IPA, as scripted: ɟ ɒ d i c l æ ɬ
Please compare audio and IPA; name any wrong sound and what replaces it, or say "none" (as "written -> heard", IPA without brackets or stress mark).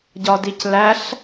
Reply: none